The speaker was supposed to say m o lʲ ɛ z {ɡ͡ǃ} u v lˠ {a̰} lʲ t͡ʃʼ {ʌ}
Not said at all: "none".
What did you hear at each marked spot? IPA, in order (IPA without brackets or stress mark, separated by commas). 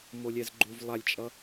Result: ɡ͡ǃ, a, ʌ